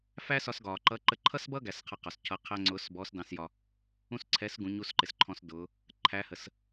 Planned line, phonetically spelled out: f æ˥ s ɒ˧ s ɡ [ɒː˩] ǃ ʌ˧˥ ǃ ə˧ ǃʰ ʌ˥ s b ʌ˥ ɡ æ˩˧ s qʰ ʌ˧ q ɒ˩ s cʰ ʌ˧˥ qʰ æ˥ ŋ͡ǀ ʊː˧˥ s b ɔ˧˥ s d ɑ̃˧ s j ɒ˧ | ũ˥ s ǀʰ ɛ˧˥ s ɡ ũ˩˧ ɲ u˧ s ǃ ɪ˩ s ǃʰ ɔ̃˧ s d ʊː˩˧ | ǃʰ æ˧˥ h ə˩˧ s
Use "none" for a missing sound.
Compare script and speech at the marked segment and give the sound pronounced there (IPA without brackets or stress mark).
ɒː˩